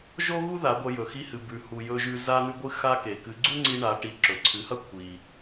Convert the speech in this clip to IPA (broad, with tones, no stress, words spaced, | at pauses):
ʒo˥ɣu˥ða˩˧ ɡʷɐ˧jɵ˩xi˧˥hɨ˩ bʉ˩hu˩jɵ˧ʒʉ˧ za˧n̪ʉ˧ɡʷɨ˧ xa˧ke˩ kɨ˩˧ɡ͡ǀu˥ŋ͡ǀi˧ ɳa˩˧ʈi˩˧ ǁɵ˩ǀʰɨ˩˧hɐ˥ kʷʰi˩